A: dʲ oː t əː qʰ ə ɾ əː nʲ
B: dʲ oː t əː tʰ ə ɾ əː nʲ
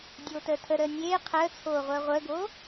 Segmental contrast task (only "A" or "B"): B